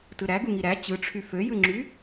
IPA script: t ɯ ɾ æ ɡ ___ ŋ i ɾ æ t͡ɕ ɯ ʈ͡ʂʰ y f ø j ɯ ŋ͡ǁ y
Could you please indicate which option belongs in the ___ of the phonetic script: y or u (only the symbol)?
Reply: u